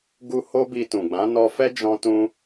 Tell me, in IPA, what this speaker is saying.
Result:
ɡ u˧ h o˦ b i˧ t ũ˨ ɡ͡b ã˨˦ n ɔ˧ f ɛ˦ d͡ʒ ɔ̃˦ t ũ˦

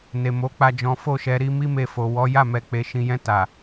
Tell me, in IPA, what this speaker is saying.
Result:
n e˨ m o˨˦ k͡p a˧ d͡ʒ ɔ̃˨ f o˧ ʃ ɛ˨ ɾ i˧ m i˦ m e˧ f o˨ w ɔ˨˦ j a˦˨ m ɛ˨ k͡p e˨ ʃ ĩ˨ j ɛ̃˧ t a˨

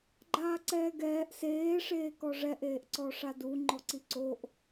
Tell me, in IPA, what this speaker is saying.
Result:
ɡ͡ǃ aː ǀ ɛː ɡ ɛː ʔ s eː ʂ eː k ɔ ʐ ɛ ʔ eː ʔ ǀ ɔ ʂ a d u ŋ͡ǃ ɔ ǀ i ǀ o ʔ

